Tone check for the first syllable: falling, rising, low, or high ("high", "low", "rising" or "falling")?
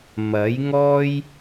rising